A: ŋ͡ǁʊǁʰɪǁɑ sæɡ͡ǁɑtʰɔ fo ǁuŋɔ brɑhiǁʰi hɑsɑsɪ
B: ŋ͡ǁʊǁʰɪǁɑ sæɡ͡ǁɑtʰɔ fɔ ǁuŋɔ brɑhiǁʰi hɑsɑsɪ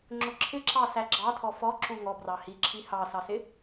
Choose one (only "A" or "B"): B